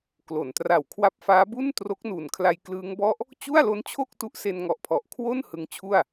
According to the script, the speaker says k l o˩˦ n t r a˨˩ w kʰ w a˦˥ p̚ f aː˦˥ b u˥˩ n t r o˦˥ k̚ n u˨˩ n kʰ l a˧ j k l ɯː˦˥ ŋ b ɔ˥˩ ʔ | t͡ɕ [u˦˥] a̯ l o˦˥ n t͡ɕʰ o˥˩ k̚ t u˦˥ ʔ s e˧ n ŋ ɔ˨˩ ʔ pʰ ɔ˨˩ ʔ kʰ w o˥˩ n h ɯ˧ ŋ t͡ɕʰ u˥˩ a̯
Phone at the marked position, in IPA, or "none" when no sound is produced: u˥˩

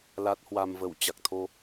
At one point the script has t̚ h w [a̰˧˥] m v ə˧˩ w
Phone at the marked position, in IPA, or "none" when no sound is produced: a˧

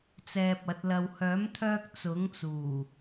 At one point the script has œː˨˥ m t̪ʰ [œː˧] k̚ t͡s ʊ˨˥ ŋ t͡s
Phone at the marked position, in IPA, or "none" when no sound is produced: œː˧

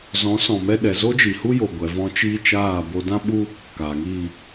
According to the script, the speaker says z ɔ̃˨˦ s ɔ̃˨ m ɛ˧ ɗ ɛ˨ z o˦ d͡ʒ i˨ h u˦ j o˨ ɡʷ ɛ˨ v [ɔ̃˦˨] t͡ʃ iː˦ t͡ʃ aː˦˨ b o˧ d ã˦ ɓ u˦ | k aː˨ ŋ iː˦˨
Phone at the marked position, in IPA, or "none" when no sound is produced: ɔ̃˧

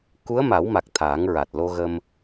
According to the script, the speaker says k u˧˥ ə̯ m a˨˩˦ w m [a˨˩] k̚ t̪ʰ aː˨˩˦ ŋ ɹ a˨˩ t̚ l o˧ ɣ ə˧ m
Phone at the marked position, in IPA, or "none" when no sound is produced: a˨˩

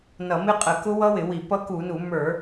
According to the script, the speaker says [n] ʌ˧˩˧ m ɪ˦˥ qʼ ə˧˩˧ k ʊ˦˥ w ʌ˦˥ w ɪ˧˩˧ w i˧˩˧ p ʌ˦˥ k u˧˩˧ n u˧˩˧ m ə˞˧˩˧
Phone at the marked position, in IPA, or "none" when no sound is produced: n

